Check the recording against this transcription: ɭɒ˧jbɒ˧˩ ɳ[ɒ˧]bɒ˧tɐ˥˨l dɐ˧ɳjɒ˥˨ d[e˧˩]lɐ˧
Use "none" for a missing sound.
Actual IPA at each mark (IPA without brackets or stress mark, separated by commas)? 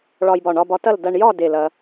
ɒ˧, e˧˩